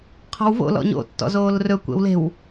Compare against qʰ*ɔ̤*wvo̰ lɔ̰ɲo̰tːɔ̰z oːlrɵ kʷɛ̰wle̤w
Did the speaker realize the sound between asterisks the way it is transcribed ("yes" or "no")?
yes